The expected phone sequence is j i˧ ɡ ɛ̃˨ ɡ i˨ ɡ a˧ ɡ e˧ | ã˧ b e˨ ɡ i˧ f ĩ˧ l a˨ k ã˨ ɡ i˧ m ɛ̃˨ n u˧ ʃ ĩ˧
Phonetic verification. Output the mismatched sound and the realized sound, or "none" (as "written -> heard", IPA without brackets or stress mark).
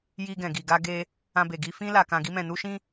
none